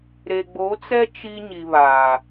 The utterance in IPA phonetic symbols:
ɾe˨ɡ͡bo˨˦t͡sɛ˦ t͡ʃi˦ ɲi˨βaː˨

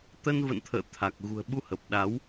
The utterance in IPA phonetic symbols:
t̪ə˧n və̰˧˨nt̪ʰə̰ː˧˨ t̪ʰa˨˩k̚ ɣṳ˨˩ə̯ɓu˧hə˨˩p̚ ɗa˨˦w

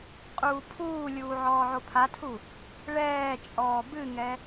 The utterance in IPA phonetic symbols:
qʼuːpʰuːlʲuː ʕɔːʕopʰatʰu | ɭɛːt͡ʃʼɔː bɨŋɛ

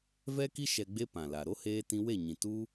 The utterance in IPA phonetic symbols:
vɛ˦ki˦ ʃɛ˧ɡ͡be˦ pã˨la˨ ɾo˦heː˧ tĩ˧we˦˨ɲĩ˨ tu˦

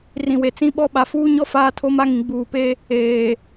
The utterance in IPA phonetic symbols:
rĩ˨we˨t͡sĩ˦ɓɔ˦ ɓa˨fuː˦ɲɔ˦ faː˦tʰo˦ma˦ŋĩ˨ ɡ͡buː˨pe˦ | eː˨

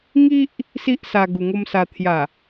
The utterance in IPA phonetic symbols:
ŋi˦ʔ | si˦ʔsa˧ ɡu˧ŋo˦msa˧ t̪ʰja˨˩

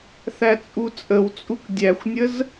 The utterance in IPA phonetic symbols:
θæt͡sʼut͡sʼəwt͡sʼuk dʲæxʷnʲəz

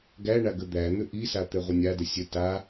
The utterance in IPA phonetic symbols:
ɡæɳa ɡəd̪æn̪ʏ ʔisa t̪ɛʁʷɘnʲadə sʲə ta

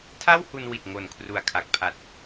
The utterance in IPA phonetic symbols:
tʰa˥˩whu˧nwi˨˩t̚ ŋo˨˩nkʰru˨˩a̯kʰa˨˩k̚pʰa˨˩t̚

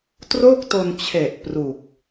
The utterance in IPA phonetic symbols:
tro˥˩k̚to˧nt͡ɕʰe˨˩ʔ pru˨˩k̚

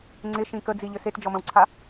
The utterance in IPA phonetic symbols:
ŋ͡ǀɪʃĩ kəd͡ziʎɘ setd͡ʒɔmə̃wǀʰa

